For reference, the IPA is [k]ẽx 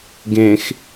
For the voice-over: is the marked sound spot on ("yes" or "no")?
no